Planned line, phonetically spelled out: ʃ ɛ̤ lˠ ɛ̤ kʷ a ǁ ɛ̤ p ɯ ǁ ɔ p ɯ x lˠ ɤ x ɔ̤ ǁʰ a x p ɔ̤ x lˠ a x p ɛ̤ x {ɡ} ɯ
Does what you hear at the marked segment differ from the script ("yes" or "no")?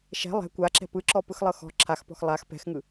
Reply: yes